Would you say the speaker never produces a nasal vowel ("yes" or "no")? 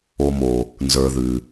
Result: yes